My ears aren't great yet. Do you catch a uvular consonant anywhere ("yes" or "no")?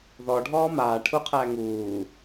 yes